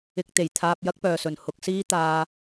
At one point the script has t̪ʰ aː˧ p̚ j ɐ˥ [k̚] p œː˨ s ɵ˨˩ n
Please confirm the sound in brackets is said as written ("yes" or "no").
yes